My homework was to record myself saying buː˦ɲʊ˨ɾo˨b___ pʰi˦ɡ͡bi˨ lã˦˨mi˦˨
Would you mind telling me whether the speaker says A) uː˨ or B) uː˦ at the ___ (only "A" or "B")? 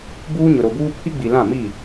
B